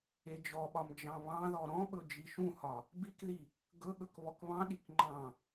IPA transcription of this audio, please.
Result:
e d͡ʒ ɔ ɓ ɒ m d͡ʒ ɑ̃ β ɑ̃ ð ɔ ɾ ɔ̃ ɓ ɵ d͡ʒ i ʃ ũ h ɒ | b i k ð i | ɡ ɵ ɠ ɵ k β ɔ k β ɑ̃ ɗ i k ŋ͡ǃ ɑ̃

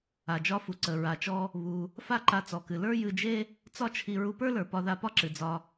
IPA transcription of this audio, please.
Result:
a˩ d͡ʒ ɒ˧ f u˩ ǀ ə˩ ɹ a˩ t͡ʃ ɔ˧ | β u˩ | f a˥ ǃ a˧ t͡s ɔ˩ k ɨ˩ l ə˞˥ j ɨ˧ d͡ʒ e˥ | t͡s ɒ˥ t͡ʃʰ i˧ ɹ u˧ p ə˞˥ l ə˞˩ p ɒ˧ ð a˧ p ɒ˥ ǁ ɨ˩ d͡z ɒ˧

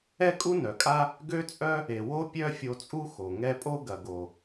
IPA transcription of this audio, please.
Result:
ɛ˦ kʼ u˦ n œ˨ kʼ a˦ | ɡ ø˦ t͡sʼ œ˦ | e˨ w o˦ pʲ œ˦ fʲ o˧ t͡sʼ u˦ x o˨ ŋ ɛ˧ pʼ o˦ ɡ ɐ˨ ɡ o˨

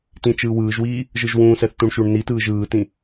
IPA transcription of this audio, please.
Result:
t ĩ t͡ʃ ɯː w ɯː ʒ w iː | ʒ ɯ ʒ w ũː s ɛ θ t ũ ɳ ʃ u ɳ n i t ɯː ʒ ɯː t ĩ

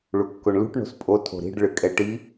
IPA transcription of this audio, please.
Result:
ɭ u kː o ɳ l ṳ ʈ ɳ o̤ s pʼ o tʰ o̤ ɾ i̤ ɖ ɭ ɨ kʼ ɛ ʈ i

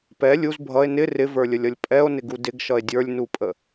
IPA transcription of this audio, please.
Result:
p ɛ lʲ u z bʱ ʌ e̯ n ɪ r ɪ v ə˞ lʲ ə lʲ ʌ lʲ pʼ ɛ o̯ n ɪ ɡ u d ɪ ɡ ʃ ʌ e̯ dʲ ə˞ lʲ n u pʼ ə

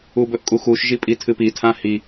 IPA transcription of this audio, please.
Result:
u b ɵ ʔ kʼ u x u ʃ ʒ i pʼ i tʰ ɨ p i tʰ ã h i

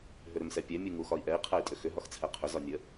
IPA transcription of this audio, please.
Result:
ɦ ʏ ɾ ʏ m s ɛ pʲ ɛ mʲ u ŋ u x ɒ i̯ ʔ ɛ i̯ qʰ ɛ i̯ tʼ ʏ x ʏ ɦ ɒ x t͡sʰ ɛ qʰ ʏ z ɒ nʲ ə

